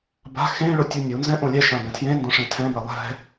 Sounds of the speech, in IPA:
ba̤ xẽɭʊ tʲunʲunzɛ̃ ʔõlʲɛʃã bɛ̃tʰjẽndõ ʂẽtʰɛ̃bɛ lˠɛ̤

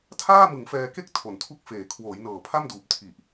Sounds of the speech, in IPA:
tʰaː˥˩mɯ˩˦ŋfɛː˧ke˥˩k̚ tʰo˨˩ntʰu˥˩k̚feː˨˩ kʰwoː˩˦jnɤː˨˩pʰa˥˩mduː˨˩p̚ tʰi˨˩ʔ

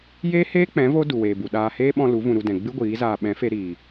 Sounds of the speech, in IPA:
jeː˦heː˦k͡pɛ̃˨˦ vo˦ du˨weː˨bu˨ ɗaː˧heː˦ ɓɔ̃˧ lu˨˦ vũ˧ɾu˧ dɛ̃˨ɡ͡bɨ˦ɡʷiː˨˦zaː˧ ɓɛ̃˨˦fe˧ɾiː˨

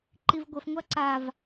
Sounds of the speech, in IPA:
ǃivɡʷəfŋʷa ǀav

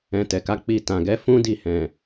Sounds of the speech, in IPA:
ɛ̃˧tɛ˨ka˨˦ k͡pi˧tã˨ɡɛ˨˦ fũ˦di˦˨hɛ̃˨

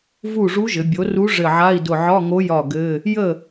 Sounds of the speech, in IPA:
vu˥˩ ʐu˧˥ʒɘ˩˧bʲo˩˥ru˧˥ ʐɘ˧˩ʕa˧˥˧i̯dʊ˧˩ ʕɒ˧˥˧ŋo˧˥jɒ˧˩ ɡɘ˧˥˧ | jə˥˩

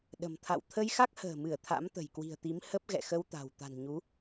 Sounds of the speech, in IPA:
ɗə̤˨˩mt̪ʰa̰˧˨w t̪ʰə˧jxa˦˥k̚hə̤ː˨˩mɨ˧˩ə̯ t̪ʰa̰˧˥mt̪ə̤˨˩jkwi̤˨˩ə̯t̪i˨˦m hə˦˥p̚ɣɛ̰˧˨xə˧wt̪a̤˨˩w t̪a̤˨˩nɲu˨˦

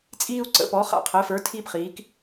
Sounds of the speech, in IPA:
t͡sʼiː˥u̯ǀə̰˧˥pɔ˧˥ χa̰˥˩qʰəː˧˥fə˞˧˥ tʰiː˥p χiː˧˥k

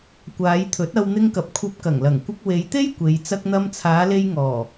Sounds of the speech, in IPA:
kʷaː˨˧jt̪ʰɵ˨˥t̚ɐ˧w n̪ɪ˧ŋkɐ˨p̚ kʷʰɐ˧p̚kɐ˨˩ŋlɐ˨˩ŋ kʷɪ˧k̚we˨˧jt̪e˥j kʷe˨˧j t͡sɐ˧k̚n̪ɐ˧mt͡sʰaː˨˧le˧j ŋɔː˨˩

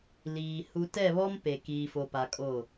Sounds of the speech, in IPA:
liː˨ hu˨tɛ˦˨βɔ˦m pe˨ kiː˨fo˨pa˨ kʼo˦˨

